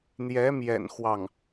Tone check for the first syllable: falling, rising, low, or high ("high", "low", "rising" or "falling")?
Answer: rising